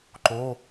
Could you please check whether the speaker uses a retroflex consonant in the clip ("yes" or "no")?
no